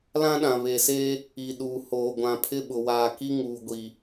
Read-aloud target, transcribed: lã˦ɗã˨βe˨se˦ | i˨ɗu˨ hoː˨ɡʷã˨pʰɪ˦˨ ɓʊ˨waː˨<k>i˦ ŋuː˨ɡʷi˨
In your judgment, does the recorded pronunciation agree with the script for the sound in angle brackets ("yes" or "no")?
yes